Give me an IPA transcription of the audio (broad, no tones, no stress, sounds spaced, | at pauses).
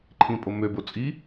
ǃʰ ĩ pʼ o m ø b o t͡sʼ i